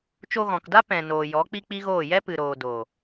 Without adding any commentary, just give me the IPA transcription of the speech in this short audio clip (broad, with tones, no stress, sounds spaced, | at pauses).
t͡ʃ o˧ ɣ ɔ̃˨ k d a˦ p ɛ̃˨ n oː˨ j ɔ˨˦ k͡p i˦ k͡p i˦ ɣ oː˦˨ j ɛ˦ p ɨ˨ ɾ oː˨ d oː˨